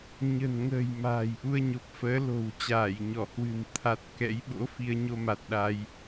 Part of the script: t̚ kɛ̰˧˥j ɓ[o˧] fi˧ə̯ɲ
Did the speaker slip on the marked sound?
yes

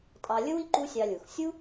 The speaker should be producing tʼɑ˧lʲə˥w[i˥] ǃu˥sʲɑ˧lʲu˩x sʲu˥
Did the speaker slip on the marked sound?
no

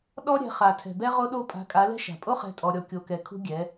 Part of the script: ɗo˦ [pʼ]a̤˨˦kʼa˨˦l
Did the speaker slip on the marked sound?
no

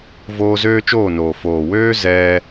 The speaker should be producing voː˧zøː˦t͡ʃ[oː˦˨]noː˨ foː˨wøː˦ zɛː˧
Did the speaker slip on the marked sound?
no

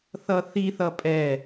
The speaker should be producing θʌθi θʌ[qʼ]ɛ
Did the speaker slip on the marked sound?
yes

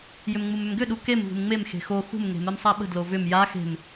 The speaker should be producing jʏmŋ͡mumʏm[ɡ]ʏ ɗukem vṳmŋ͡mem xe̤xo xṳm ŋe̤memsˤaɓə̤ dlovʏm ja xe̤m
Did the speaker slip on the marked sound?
no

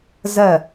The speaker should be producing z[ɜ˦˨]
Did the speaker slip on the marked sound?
no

